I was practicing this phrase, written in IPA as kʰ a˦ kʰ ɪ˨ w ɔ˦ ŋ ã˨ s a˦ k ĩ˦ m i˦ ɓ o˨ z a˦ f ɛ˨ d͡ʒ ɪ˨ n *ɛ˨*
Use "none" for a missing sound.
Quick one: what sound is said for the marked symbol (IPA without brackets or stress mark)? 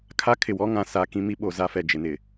ɪ˨